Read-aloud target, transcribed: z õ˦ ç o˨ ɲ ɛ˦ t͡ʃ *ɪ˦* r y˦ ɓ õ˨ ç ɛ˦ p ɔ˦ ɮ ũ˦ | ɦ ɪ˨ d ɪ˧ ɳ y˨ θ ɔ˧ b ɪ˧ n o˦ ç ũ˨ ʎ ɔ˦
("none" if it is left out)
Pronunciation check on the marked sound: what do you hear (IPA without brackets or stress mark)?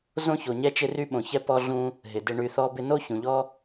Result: ɪ˦